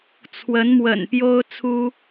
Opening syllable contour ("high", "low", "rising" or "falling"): rising